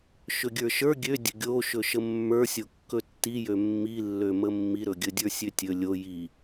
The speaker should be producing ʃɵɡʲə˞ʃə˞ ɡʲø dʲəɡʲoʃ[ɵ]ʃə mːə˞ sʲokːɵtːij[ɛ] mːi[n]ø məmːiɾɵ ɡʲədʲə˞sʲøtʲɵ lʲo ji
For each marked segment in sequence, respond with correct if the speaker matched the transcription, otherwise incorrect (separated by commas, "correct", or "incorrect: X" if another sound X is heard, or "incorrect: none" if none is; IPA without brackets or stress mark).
correct, incorrect: ø, incorrect: lː